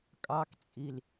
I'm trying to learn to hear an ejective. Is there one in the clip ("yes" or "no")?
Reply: yes